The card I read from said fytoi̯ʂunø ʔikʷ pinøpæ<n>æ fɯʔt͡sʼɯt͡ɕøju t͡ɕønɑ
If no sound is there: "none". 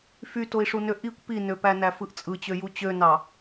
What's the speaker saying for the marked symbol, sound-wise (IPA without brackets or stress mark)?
n